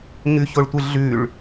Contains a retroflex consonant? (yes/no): yes